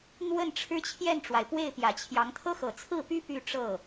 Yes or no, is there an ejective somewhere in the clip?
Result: no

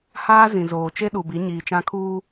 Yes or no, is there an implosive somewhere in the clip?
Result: yes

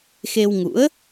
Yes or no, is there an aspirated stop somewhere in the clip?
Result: no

